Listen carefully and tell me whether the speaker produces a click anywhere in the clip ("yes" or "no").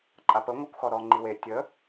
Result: yes